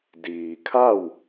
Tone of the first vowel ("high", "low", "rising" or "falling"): low